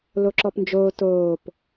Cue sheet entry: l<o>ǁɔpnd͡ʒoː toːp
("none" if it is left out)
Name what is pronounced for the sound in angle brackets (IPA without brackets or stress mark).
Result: o